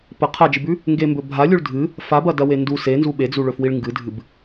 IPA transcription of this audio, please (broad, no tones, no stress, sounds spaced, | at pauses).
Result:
p ɐ qʰ a d͡ʒ ɨ b ʉ | ŋ ɡ e m b ɵ bʱ a lʲ u ɭ dʱ ɨ | f a b ɐ d ɐ w e n d u s e n z u ɓ e d͡z u ɭ ɵ f w i ɭ ŋ ɡ ɨ dʱ ɨ b